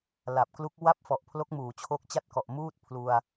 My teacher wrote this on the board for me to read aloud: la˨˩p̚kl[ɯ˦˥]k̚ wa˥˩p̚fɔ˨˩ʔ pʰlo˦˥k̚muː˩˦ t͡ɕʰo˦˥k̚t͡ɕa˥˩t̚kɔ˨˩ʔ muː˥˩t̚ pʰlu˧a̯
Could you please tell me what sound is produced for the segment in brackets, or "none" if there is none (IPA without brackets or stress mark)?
u˦˥